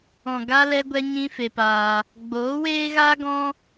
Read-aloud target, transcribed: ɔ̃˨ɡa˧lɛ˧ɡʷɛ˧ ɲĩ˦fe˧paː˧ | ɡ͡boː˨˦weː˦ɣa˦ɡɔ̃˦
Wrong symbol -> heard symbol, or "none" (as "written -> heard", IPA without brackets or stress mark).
none